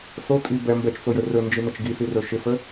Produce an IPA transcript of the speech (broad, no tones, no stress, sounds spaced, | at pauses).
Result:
s o tʼ i b ɛ m b ɛ t͡ʃ t͡s o j ɵ r ɵ n d͡ʒ i n ə t͡ʃ ɡ i s i r ɵ ʃ ɪ f ə